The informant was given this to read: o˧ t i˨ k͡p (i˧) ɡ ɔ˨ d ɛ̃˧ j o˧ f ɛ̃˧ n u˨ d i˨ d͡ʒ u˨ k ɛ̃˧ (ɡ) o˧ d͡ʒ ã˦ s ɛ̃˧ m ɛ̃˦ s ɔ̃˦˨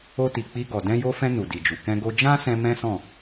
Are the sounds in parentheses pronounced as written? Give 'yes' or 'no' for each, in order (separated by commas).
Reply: yes, yes